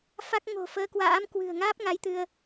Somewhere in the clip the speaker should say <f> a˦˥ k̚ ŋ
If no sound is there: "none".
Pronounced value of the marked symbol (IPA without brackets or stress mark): f